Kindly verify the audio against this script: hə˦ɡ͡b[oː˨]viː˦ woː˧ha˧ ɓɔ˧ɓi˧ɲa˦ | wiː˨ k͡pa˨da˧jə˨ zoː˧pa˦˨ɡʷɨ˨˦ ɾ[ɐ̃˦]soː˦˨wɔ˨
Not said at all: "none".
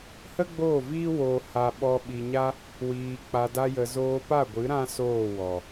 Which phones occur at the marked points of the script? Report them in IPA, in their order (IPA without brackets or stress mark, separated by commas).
oː˦˨, ã˦